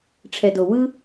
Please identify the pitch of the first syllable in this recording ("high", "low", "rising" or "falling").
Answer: low